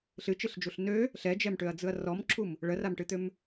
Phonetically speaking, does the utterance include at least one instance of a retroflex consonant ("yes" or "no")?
yes